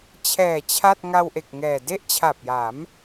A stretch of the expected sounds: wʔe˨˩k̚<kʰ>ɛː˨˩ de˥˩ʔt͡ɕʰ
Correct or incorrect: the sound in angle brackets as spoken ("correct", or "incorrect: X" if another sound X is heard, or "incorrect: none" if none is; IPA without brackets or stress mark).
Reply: incorrect: ŋ